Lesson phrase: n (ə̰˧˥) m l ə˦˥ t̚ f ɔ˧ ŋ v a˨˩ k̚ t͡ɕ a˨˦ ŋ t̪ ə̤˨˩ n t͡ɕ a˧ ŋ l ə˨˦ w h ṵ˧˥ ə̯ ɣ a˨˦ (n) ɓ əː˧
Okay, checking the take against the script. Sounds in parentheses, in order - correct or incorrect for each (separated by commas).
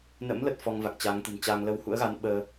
correct, correct